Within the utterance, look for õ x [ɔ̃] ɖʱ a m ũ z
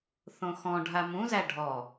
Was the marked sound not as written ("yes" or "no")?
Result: no